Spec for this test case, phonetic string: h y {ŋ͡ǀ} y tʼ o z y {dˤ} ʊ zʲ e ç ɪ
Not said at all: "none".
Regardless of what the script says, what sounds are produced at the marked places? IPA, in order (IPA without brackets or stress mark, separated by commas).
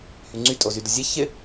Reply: ŋ͡ǀ, d